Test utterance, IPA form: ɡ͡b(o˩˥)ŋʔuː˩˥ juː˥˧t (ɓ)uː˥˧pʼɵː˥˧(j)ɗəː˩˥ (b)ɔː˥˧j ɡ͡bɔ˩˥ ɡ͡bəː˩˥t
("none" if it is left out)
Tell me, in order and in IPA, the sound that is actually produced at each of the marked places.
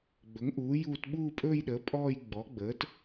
ɵ˩˥, ɓ, j, pʼ

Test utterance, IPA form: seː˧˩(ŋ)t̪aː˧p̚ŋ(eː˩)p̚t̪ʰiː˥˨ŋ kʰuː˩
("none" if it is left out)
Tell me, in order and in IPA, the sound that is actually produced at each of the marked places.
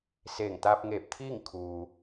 ŋ, eː˧˩

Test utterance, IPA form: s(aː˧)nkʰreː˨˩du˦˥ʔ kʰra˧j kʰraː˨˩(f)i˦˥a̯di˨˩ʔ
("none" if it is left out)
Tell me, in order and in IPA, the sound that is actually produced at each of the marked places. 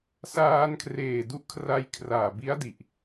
aː˧, b

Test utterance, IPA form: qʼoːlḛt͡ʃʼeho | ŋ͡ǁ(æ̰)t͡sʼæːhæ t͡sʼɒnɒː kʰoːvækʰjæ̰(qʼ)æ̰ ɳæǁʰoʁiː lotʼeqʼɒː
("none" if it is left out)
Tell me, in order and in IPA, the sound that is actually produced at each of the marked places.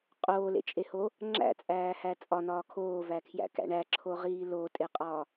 æ̰, k

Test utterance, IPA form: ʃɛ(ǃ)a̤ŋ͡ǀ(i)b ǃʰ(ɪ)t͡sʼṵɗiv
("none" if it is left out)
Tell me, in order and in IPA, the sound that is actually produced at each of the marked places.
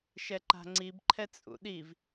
ǃ, i, ɛ

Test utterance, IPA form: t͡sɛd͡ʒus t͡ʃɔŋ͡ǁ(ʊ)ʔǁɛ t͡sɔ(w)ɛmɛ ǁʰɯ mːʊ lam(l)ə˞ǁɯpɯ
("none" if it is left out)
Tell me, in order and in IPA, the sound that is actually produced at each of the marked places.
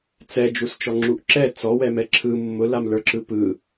u, w, l

